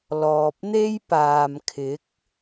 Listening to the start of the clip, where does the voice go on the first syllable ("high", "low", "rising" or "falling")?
low